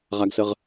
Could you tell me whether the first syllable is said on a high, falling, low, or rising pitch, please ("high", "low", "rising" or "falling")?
high